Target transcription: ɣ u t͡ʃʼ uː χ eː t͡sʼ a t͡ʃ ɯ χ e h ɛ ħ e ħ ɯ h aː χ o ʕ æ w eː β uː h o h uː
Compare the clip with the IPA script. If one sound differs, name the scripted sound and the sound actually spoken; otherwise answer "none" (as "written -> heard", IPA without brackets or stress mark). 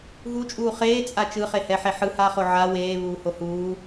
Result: æ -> a